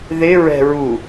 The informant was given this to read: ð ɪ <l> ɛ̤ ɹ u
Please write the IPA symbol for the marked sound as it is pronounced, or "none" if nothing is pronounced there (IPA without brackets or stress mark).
ɹ